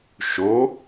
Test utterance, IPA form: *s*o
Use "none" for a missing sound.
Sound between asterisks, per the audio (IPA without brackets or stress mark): ʃ